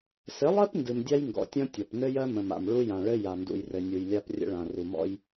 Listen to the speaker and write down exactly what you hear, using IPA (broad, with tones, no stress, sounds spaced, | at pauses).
s ɘ˨˦ lˠ ɜ˦ p n d ɨ˨ m dʲ a˦ j ŋ ɡ ɔ̰˨ tʲ ɔ̃˦ tʲ ɔ˨ p n ɘ˦ j ɜ˦ m ə̃˨ m a̰˨ m ɭ u˦ j ã˨ ɭ ɘ˦ j a˨ n d ṵ˨ j r ɘ˨ nʲ u˨ j lʲ a˦ p rʲ ə̰˦ ɭ ã˨ r u˨ m ɔ̰˦ j